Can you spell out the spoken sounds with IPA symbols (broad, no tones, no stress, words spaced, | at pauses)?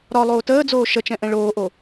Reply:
ɾɒ lˠoːtəːd͡zoː ʃət͡ʃɛ̃ʔɛ̃ ɭoːʔo